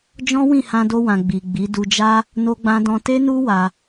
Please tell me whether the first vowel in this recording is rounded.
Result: yes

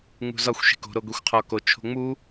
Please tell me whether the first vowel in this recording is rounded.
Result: yes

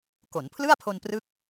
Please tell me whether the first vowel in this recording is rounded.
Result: yes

